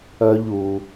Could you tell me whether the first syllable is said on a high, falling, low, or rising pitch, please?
high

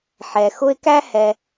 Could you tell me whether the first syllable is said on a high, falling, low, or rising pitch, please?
low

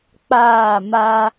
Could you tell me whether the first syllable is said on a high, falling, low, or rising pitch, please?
falling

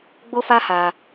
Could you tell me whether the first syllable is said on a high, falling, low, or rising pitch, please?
high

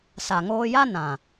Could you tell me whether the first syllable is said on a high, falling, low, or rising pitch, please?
low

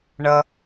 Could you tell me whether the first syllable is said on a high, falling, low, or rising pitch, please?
low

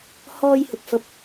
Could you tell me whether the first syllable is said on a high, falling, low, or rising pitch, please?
high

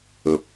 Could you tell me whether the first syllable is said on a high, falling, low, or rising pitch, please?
low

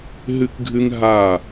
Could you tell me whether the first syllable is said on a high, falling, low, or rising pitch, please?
high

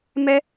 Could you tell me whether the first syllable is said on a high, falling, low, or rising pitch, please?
high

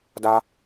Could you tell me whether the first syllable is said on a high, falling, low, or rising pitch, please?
high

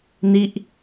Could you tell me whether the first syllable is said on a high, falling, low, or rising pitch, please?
falling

